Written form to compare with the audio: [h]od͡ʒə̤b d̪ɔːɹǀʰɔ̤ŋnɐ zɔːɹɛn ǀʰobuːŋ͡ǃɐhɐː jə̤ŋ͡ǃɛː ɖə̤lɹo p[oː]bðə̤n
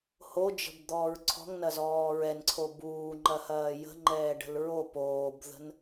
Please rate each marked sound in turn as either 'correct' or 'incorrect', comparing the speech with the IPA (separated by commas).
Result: correct, correct